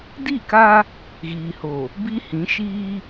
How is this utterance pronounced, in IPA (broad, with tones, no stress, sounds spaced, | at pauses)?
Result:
d i˦˨ k a˦ | ɣ iː˨ h o˨ | b i˦ h ĩ˨˦ ʃ iː˦